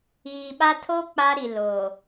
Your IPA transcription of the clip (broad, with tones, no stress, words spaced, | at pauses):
iː˨ɓa˦ tʰo˦ k͡pa˦ɾi˨lo˨